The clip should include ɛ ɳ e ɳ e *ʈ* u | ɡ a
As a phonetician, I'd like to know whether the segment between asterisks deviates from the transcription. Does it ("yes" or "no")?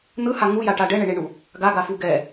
yes